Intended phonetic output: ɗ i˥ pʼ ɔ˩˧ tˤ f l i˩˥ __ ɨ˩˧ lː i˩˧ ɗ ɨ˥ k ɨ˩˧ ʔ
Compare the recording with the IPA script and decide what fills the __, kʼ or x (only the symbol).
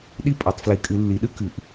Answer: kʼ